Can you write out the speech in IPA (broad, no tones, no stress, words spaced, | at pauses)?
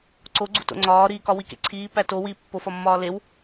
ǀoɡ͡ǀṵto̰ ŋ͡ǀɒːɾiːkɒ wikḛǀʰiːpæ to wi pːofɒmːɒː lew